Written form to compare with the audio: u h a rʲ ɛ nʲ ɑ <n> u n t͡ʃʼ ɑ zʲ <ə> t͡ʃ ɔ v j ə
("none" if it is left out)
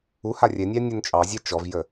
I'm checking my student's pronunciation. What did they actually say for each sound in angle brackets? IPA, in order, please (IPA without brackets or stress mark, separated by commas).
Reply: nʲ, æ